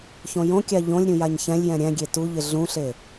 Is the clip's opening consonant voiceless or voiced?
voiceless